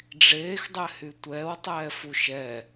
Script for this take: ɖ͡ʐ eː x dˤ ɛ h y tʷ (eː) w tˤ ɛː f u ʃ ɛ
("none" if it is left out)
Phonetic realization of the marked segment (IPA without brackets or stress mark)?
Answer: ɛː